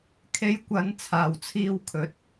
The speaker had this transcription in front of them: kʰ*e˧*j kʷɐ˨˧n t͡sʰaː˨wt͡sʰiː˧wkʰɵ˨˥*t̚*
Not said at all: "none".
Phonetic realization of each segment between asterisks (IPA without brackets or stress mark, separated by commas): e˨˧, t̚